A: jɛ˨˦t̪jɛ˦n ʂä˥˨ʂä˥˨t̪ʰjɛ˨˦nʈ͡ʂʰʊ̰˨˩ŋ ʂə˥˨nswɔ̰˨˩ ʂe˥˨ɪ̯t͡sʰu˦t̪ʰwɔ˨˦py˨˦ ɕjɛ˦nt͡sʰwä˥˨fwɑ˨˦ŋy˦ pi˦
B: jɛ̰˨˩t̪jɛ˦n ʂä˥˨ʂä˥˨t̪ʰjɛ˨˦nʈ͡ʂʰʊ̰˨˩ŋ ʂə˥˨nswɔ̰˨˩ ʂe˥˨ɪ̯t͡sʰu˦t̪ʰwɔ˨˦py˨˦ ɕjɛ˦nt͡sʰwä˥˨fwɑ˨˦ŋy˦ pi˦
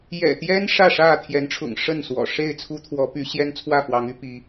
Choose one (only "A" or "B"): B